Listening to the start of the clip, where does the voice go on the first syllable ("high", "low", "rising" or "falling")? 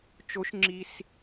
rising